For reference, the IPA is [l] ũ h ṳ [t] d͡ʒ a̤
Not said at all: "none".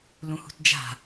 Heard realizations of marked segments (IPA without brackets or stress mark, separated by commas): l, t